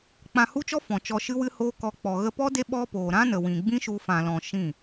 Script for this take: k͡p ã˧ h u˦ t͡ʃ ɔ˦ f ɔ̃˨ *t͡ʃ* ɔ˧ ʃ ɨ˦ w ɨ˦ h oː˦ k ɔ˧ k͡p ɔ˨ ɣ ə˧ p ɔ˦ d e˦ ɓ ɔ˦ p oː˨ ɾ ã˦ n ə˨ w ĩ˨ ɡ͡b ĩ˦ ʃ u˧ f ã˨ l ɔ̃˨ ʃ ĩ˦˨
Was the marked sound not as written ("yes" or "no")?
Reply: no